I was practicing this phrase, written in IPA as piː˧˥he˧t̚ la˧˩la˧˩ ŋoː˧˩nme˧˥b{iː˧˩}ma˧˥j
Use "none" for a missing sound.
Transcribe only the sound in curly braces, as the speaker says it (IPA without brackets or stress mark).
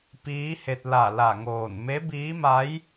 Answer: iː˧˥